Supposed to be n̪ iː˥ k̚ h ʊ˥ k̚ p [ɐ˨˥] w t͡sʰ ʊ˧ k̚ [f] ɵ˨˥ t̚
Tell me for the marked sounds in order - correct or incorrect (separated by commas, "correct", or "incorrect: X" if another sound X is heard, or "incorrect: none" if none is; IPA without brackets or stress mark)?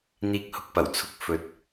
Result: incorrect: ɐ˨˩, correct